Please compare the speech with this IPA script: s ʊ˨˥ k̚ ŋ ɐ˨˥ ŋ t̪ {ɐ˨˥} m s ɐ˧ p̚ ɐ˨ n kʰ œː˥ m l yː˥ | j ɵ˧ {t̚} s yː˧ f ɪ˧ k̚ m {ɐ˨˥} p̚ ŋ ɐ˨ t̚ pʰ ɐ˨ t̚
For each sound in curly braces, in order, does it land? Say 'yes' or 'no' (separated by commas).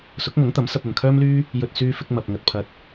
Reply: yes, yes, no